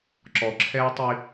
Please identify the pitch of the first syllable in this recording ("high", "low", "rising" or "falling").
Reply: low